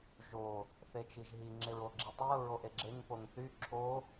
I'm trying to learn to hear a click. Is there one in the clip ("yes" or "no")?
yes